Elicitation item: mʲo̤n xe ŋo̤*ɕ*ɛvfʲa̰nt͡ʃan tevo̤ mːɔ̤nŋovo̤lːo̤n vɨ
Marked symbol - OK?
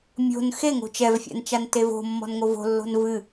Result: no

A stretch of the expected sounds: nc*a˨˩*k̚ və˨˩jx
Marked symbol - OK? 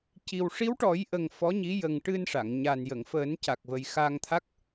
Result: yes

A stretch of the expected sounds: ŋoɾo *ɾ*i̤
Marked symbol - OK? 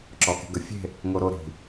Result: yes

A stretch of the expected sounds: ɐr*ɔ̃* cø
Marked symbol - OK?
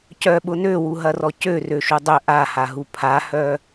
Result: no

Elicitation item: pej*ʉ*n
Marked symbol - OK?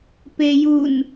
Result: no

